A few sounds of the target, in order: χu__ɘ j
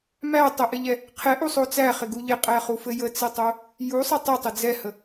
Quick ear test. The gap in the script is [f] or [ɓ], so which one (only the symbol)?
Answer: f